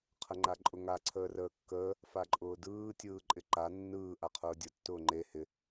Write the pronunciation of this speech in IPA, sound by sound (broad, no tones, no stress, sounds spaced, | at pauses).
qʰ ə ŋ͡ǃ a ǃʼ ʊ ŋ a ǀʰ əː r əː kː əː | f a ǃʼ ʊː d ɯː tʲ ɯː ǃʼ ɪ ǃ a nː ɯː ʔ a qʰ ʊː dʲ ʊ tː ʊː ŋ͡ǃ e h ɪ